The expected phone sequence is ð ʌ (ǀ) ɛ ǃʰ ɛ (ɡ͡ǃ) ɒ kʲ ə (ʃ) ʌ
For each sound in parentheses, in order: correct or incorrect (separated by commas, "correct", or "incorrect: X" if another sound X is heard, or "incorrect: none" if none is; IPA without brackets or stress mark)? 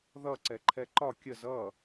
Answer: correct, incorrect: ǃ, incorrect: z